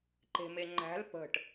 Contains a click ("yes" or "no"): yes